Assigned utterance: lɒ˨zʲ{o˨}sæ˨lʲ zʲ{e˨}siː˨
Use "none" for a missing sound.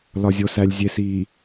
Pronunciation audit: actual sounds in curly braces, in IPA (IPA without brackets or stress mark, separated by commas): o˨, e˨